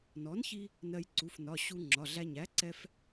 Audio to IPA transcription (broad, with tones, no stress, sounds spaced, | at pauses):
n ɔ˩˥ n ç i˧ | n ɜ˧ j ǀ u˩˧˩ f n ɒ˩˧˩ ɕ u˧ ŋ͡ǁ ɒ˩˧˩ ɮ æ˧ ɲ æ˩˥ ǀ ɛ˧ f